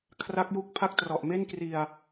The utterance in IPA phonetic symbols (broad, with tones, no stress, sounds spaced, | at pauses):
kʰ r a˦˥ k̚ j u˦˥ k̚ pʰ a˦˥ k̚ t r ɔ˨˩ ʔ m e˥˩ n k r i˧ a̯